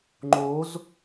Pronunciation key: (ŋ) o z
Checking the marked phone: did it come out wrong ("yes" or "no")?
yes